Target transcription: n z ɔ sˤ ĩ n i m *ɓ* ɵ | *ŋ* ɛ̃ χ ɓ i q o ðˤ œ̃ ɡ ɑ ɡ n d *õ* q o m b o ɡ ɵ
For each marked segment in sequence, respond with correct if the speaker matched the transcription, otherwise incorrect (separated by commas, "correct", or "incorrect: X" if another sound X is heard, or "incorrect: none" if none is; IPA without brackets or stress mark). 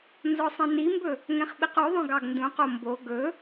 incorrect: b, correct, incorrect: ũ